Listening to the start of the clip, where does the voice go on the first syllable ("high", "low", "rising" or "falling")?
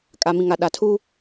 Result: low